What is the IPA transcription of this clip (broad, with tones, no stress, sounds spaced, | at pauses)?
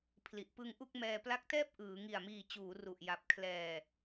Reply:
pʰ l i˨˩ ʔ p ɯ˧ ŋ ʔ u˥˩ k̚ m ɛː˧ p l a˦˥ k̚ t ɛː˥˩ p̚ ʔ ɯː˩˦ ŋ i˨˩ a̯ m iː˨˩ t͡ɕ uː˩˦ r u˨˩ ʔ j a˨˩ p̚ kʰ l ɛː˧